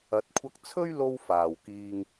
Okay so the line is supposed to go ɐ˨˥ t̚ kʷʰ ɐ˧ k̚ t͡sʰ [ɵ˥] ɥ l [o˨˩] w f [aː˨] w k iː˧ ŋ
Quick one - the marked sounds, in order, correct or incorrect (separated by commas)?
correct, incorrect, correct